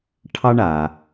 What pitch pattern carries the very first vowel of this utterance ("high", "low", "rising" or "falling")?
high